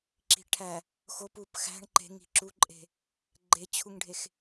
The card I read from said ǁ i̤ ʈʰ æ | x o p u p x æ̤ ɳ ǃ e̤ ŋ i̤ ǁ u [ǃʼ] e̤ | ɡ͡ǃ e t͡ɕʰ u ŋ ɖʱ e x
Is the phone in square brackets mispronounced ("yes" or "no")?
no